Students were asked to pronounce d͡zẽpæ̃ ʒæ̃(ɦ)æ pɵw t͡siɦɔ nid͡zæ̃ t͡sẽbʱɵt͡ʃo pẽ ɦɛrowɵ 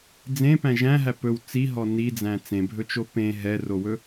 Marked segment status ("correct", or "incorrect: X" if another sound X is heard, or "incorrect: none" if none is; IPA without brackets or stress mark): correct